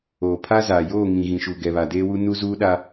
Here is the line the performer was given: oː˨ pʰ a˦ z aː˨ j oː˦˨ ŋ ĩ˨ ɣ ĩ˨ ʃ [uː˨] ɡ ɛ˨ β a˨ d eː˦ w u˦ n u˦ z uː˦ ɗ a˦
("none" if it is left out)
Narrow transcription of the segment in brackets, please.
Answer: u˨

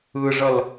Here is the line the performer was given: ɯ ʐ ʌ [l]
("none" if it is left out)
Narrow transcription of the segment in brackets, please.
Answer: l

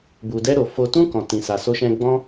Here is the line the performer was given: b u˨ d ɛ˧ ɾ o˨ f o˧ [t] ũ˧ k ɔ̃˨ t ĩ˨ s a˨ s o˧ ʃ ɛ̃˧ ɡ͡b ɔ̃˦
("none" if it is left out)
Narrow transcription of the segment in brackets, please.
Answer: t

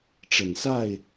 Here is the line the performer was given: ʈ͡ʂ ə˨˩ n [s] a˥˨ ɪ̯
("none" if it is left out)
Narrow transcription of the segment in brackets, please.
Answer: s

